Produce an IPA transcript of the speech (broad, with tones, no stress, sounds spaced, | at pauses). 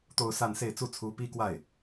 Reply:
t̪ o˥˧ ʊ̯ s a˥˧ n s e˥˧ ɪ̯ t͡s u˥˩ t͡sʰ u˧˥ p i˥ k w a˥˩ ɪ̯